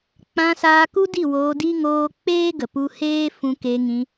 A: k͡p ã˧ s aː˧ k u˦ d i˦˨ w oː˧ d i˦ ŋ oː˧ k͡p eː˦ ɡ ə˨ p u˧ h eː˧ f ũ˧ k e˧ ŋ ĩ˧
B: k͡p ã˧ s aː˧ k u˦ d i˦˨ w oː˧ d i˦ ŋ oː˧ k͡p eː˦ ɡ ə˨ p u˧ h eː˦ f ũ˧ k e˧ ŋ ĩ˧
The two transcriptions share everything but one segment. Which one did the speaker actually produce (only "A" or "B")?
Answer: B